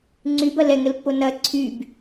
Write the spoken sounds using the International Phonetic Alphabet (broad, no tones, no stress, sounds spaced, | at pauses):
ŋ͡ǀ y b ɐ l ɛ ŋ ə l pː o n ɐ ǀʰ y b